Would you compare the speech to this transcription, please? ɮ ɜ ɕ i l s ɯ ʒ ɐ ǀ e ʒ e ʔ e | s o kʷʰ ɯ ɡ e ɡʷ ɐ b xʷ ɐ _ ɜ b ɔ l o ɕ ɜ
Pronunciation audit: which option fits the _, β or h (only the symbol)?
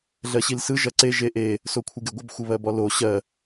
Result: β